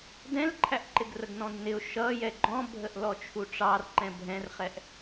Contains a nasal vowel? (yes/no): yes